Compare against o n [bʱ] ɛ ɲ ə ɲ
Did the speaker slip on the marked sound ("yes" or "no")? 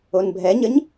no